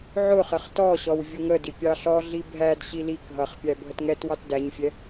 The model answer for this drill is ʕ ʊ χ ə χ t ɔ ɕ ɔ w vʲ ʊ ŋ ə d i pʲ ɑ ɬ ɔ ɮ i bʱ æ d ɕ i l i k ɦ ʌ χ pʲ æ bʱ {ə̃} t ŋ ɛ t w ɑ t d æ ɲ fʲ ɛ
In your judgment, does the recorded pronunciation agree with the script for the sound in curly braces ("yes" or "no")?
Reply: no